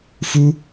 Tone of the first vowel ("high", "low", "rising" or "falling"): high